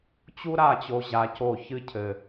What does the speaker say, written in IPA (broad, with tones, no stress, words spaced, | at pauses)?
t͡ɕu˥ɾa˥˨t͡ɕo˧ ʑa˧˥co˥˨ çɨ˥cʰɘ˧